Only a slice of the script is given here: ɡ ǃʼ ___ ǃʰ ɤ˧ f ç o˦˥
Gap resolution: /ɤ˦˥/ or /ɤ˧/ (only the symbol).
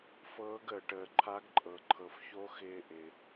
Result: ɤ˧